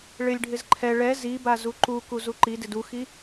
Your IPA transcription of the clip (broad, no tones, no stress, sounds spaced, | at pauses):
ɭ ɪ lʲ ɖʱ ɪ z ǃʰ ɛ ɭ ɛ z i b a z u ǃ u k u z u ǃ i d ɪ d u x i